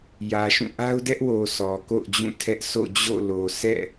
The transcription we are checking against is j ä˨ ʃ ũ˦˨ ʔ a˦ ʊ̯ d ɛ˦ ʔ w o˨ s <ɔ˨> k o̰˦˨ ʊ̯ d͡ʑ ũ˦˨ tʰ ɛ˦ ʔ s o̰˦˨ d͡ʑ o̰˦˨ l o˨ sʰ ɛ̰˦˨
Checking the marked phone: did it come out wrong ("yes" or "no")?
no